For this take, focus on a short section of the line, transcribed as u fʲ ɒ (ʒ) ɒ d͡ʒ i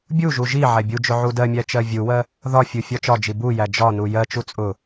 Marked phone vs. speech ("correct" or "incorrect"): incorrect